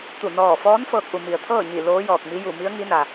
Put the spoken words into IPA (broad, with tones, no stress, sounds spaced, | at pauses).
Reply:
t̪ u˧˩ n ɔː˧˩ f ɔː˧˥ n f ɤː˧ k̚ ʔ u˩ m i˩ ə̯ t̪ʰ ɤː˥˨ ɲ i˧˩ l oː˧˥ j ɔː˧˩ k̚ m i˧˥ j u˧˩ m i˧˥ ə̯ ŋ i˧˥ n a˩